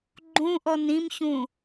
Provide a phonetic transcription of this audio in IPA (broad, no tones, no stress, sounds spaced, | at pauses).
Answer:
ɡ͡ǃ ũ ʔ ɔ n ĩ m ç ũ